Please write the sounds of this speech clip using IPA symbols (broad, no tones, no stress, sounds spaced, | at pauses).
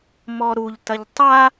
m ɔ ɾ u ʎ t ɐ ʎ tˤ a